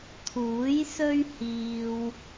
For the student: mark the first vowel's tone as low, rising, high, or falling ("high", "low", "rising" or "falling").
rising